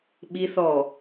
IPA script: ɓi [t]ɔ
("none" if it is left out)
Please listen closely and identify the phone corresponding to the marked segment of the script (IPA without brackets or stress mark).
θ